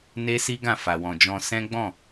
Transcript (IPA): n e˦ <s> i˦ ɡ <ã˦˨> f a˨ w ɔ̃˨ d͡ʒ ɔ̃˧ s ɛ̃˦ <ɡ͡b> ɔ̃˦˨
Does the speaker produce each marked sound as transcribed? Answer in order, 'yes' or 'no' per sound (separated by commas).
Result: yes, yes, yes